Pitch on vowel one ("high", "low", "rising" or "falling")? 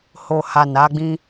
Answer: low